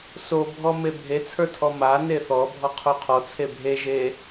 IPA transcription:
s o bʱ ɔ m e bʱ e t͡sʰ ə˞ tʰ ɔ m a n e θ ɔ bʱ ɔ qʰ o qʰ ɔ t͡sʰ e bʱ e ʒ e

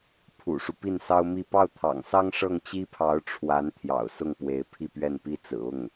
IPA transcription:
pʰ ṵ˨˩ ʂ u˦ p i˥˩ n s ɑ˥ ʊ̯ m i˥˧ p ɑ˥˩ ʊ̯ t̪ʰ ɑ̰˨˩ ŋ s ɑ˥ ŋ ʂ ɤ˥˩ ŋ t͡ɕ i˥ pʰ ɑ˧˥ ʊ̯ ʈ͡ʂʰ w a˧˥ n t̪ʰ j ɑ̰˨˩ ʊ̯ s ʊ˥˩ ŋ p w e˧˥ ɪ̯ pʰ i˥˧ p ɥ ɛ˥˩ n p i˥ t͡s ɹ̩˨˩ ʊ˥˩ ŋ

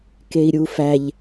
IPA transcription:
k e i̯ ɾʲ u f æ ʎ

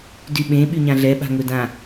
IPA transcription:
d y ɓ ẽ ɓ y ɲ ã ɮ ɛ ɓ a̤ ŋ ɵ d ã

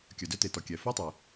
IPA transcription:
kʲ œ˩ d œ˥ t e˩ t ɔ˩ kʲ ɛ˩ f o˥ tˤ e˩

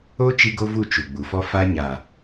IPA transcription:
o˦ t͡ʃ i˦ ɡ o˦ v u˦˨ t͡ʃ u˨ ɡ͡b u˨ f ɔ˦ f a˦ ɲ a˨

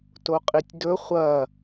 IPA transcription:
t o qʼ i tʲ d ɵ χʷ ɐ

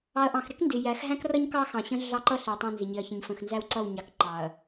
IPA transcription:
ɑ˨ ɐ̯ ʔ ɑ̃˨ x ɾ ɪ˦ k n d ɪ˨ j æ˨˦ x ɦ æ̃˦ k r ʌ˦ ɲ k ɑ˦ x ɑ̃˨ ɕ ə̃˦ ɮ ɑ˦˨ ǃ ʌ˦ ɬ æ˨ tˤ æ̃˦˨ n z ɪ˨ ɲ ɪ˨ ɐ̯ ç ə̃˨ ɲ f ə̃˨ x n z æ˦ w ǀ ʌ˦˨ w ɲ ɑ˨ k ǃ ɑ˨ ɐ̯

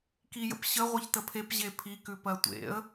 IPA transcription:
k i j ə̰ p ɕ ə ʁʷ e ç t ə pʰ e p ʑ e pʰ i k ʉ p ɜ tʷ ḛ ə̯

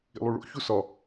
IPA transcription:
ḭ lˠ u ɭ o̰ ç u s ɒ

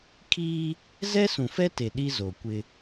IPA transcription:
kʰ iː˦ | z ɛ˦ s ũ˨ f ɛ˦ t e˨ ɗ i˦ z o˨ kʷ ɪ˦

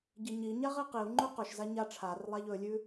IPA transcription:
ɟ i ɲ i ɲ a ʁ i q i u̯ ŋ͡ǃ ʉ q ɵ ʃ z a ɲ a ʈ͡ʂʰ a r lˠ a ʎ ɵ lʲ ʉ

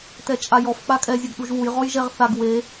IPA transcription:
t ɛ t͡ʃʼ a j ɔ f k͡p a kʼ ɛ zʲ ɘ ɡ ɗ u ʒ w u j ʁ ɔ j ʒ ɛ ʁ θ a ɡ w e

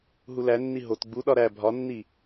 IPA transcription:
ɦ u l æ nː i ɦ o t ɡ͡b u ɗ ɒ ɾ æ bʱ ɒ nː i

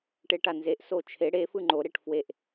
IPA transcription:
ʈ e ʈ a n z e ʔ s o t͡ʃʰ e ɽ e f ɯ ŋ͡ǃ o ɾ e ʈ f w e ʔ

